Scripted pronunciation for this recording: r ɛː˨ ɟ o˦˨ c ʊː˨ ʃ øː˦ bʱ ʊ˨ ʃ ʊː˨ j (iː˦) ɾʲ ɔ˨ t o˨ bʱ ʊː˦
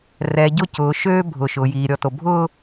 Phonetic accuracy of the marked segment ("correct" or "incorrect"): incorrect